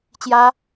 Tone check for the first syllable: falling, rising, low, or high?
high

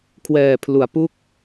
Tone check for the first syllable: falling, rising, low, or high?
low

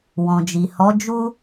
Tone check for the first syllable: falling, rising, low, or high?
low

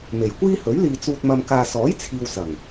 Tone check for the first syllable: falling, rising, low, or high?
low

